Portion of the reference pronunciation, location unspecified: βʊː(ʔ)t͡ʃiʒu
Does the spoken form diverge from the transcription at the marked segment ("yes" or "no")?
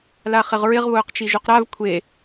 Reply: yes